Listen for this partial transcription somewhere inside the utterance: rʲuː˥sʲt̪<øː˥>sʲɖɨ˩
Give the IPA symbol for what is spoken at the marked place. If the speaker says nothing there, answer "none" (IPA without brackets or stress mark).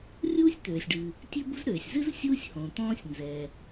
øː˩